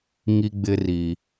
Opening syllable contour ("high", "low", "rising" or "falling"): high